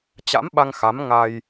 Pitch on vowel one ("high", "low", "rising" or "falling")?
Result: rising